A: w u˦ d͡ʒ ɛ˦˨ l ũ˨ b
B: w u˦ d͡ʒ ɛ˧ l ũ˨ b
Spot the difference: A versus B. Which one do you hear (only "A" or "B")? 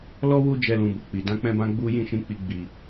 B